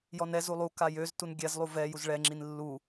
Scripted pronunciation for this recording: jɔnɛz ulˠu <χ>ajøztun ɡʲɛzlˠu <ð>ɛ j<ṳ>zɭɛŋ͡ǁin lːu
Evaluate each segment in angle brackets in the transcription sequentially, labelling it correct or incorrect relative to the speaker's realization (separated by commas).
incorrect, incorrect, incorrect